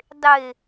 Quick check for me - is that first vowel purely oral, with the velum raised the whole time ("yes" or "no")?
yes